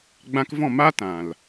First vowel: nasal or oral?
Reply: nasal